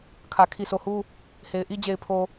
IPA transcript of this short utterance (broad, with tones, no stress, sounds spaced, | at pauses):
kʰ ä˨ kʰ i˨ s o˨ h u˦ | h e˨ ɪ̯ ʔ i˦ d͡ʑ e˨ ɪ̯ pʰ o˨